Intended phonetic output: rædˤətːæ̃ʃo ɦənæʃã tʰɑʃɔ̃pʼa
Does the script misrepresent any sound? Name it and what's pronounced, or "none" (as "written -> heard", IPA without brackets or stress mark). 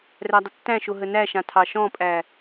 a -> æ